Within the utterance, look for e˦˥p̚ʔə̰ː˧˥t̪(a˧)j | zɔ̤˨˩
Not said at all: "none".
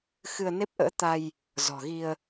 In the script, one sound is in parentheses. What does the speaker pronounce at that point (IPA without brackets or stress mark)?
a˧